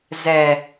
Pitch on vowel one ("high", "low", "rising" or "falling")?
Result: low